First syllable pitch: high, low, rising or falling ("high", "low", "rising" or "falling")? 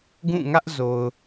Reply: falling